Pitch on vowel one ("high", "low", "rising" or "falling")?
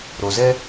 low